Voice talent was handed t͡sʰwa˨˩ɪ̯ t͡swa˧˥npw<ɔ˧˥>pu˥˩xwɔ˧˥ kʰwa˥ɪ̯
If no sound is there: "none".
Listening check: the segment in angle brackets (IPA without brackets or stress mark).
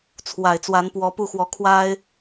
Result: ɔ˧˥